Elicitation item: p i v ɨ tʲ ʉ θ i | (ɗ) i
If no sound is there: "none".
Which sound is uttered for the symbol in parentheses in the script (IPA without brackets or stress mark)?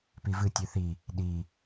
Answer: ɗ